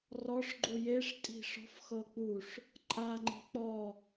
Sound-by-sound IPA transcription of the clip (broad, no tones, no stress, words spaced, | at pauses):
rɔʂɡ͡ǃu jeʂtʼi̤ ʂɔ̤fxɤ k͡puʂ | ǃʼaŋ͡ǃi̤ k͡pɔ